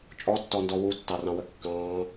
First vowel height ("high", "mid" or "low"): mid